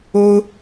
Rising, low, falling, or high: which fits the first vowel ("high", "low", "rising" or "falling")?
high